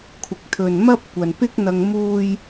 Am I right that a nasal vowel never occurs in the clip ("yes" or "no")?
yes